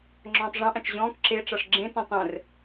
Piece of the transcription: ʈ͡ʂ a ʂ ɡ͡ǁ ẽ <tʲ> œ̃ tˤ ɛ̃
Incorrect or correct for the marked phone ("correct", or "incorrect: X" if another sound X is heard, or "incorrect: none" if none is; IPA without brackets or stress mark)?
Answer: incorrect: t